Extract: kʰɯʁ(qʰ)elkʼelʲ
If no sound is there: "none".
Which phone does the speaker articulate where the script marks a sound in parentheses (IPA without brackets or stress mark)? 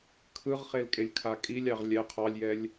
χ